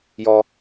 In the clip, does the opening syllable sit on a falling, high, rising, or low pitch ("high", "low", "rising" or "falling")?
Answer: high